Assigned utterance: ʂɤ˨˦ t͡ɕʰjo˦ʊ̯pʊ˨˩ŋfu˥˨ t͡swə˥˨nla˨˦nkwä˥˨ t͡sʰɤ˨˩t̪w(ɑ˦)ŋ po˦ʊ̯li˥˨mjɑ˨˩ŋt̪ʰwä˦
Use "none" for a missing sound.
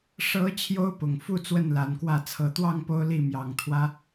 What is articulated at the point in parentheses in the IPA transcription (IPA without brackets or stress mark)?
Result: ɑ˥˨